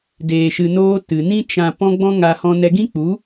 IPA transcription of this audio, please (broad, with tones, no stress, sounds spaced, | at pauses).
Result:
d eː˨ ʃ ɨ˨ n oː˧ t ɨ˨ n ĩ˧ t͡ʃ ã˨ p ɔ̃˦ ɡ͡b ɔ̃˦ ŋ a˧ h ɔ̃˧ n ɛ˧ ɡ ĩ˦ k͡p u˨˦